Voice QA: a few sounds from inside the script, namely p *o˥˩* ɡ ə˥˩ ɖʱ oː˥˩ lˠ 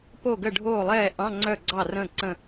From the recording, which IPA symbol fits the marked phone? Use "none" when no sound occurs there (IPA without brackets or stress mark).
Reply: o˥˩